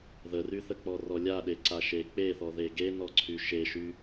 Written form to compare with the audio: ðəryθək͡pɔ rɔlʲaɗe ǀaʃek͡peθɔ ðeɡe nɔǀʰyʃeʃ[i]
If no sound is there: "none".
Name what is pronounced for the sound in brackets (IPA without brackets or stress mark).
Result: y